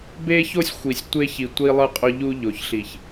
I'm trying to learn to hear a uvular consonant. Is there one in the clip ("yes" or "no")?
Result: yes